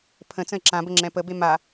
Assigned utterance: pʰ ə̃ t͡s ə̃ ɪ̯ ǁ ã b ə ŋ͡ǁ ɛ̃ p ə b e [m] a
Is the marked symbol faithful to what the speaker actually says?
yes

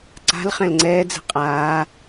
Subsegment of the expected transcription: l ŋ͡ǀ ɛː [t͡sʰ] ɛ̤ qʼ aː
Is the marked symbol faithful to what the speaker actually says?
no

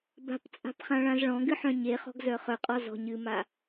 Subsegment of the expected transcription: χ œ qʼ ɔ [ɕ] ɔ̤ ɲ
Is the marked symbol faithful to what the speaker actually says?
no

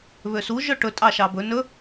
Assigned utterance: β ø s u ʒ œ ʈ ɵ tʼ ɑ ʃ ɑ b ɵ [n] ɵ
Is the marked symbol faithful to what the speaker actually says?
yes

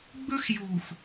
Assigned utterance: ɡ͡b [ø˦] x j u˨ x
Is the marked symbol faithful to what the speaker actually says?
no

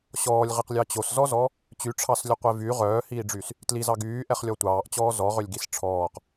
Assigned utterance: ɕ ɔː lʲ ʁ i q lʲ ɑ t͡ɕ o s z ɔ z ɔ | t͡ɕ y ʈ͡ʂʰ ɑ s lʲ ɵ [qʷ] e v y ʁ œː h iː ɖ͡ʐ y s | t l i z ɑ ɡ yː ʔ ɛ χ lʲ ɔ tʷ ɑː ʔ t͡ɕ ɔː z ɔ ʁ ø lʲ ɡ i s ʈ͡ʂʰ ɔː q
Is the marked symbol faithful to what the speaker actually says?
yes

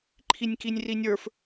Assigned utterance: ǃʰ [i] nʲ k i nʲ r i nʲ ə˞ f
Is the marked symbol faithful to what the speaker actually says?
yes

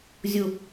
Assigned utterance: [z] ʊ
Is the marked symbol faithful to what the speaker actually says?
no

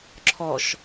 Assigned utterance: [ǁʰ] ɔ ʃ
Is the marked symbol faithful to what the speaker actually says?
yes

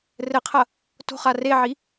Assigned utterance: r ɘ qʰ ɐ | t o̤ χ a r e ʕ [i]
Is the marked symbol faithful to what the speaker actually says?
yes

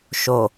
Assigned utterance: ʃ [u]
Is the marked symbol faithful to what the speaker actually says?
no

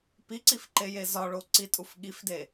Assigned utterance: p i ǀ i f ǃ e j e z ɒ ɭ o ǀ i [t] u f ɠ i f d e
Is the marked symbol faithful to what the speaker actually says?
no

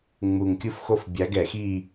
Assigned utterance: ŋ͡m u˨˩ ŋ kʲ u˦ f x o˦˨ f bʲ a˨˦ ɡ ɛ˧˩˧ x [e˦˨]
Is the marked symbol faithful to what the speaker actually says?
no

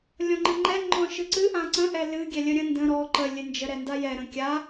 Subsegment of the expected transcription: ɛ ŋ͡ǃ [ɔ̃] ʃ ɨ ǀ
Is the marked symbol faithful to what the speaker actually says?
yes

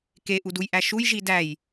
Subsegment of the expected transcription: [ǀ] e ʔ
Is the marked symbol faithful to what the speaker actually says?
no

